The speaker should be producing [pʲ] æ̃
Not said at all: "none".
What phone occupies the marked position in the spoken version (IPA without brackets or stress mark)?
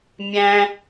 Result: mʲ